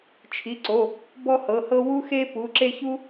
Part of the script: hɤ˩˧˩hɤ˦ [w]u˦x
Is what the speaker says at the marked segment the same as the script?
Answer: yes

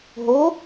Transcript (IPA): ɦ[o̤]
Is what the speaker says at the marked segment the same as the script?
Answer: no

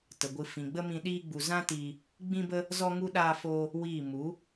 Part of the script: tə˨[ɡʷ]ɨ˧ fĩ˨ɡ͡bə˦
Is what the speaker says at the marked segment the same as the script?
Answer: yes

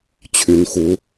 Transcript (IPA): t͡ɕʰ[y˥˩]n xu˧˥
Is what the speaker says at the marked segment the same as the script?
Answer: no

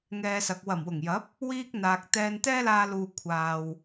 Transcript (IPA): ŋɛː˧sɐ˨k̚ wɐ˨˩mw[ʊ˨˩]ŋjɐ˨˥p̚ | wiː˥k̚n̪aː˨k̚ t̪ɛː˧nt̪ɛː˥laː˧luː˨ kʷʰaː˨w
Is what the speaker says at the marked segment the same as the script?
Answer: yes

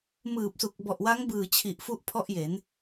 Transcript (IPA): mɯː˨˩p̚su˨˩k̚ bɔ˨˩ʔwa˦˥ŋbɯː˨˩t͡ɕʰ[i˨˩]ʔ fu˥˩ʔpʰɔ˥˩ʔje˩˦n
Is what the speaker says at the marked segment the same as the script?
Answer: yes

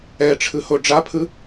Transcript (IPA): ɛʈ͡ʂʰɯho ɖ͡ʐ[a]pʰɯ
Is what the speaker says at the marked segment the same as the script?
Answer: yes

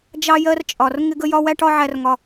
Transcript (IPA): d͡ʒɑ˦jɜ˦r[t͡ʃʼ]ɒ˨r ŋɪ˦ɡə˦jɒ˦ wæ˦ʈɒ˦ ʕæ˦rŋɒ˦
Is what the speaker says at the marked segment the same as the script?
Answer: yes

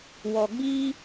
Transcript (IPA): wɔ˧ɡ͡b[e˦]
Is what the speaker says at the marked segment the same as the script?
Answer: no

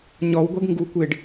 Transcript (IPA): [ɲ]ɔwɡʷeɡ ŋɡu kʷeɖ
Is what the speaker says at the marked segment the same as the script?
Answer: yes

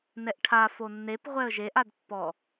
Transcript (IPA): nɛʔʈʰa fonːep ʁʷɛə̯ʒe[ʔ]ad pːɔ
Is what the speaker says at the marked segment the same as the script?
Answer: yes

